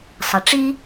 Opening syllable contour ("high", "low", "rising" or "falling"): low